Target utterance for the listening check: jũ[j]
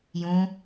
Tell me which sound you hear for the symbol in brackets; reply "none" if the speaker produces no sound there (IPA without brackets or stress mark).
none